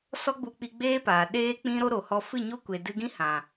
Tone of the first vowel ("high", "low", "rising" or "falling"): high